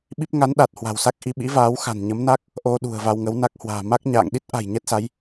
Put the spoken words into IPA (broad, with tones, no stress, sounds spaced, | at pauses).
ɓ i˦˥ p̚ ŋ a˨˦ n ɗ a˨˩ t̚ h w a̤˨˩ w s a˦˥ k̚ ʔ i˧ ɓ ḭ˧˥ v aː˨˦ w x a̤˨˩ n ɲ ə˨˦ m n a˦˥ k̚ | ʔ o˧ ɗ ṳ˨˩ ə̯ v a˧ w ŋ ə˨˦ w n a˦˥ k̚ h w a̤ː˨˩ m a˦˥ k̚ ɲ a̰ː˧˨ ŋ ɗ i˦˥ t̚ ʔ a̤˨˩ j ɲ ɛ˦˥ t̚ s a˨˦ j